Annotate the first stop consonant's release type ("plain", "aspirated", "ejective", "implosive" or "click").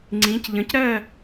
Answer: click